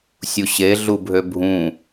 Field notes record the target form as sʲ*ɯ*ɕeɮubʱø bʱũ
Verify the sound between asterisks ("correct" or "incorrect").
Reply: incorrect